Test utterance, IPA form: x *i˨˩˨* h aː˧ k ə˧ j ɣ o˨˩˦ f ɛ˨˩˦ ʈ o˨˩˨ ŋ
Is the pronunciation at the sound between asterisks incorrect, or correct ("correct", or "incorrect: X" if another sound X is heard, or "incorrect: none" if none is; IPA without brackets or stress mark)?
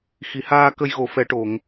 correct